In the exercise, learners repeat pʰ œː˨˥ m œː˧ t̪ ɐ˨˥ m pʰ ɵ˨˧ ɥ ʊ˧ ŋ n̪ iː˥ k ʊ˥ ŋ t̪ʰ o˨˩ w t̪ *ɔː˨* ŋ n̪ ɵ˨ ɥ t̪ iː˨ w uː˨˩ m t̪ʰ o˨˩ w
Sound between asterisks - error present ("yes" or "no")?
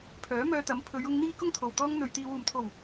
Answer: yes